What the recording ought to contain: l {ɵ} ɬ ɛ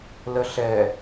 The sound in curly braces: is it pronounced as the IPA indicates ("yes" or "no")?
no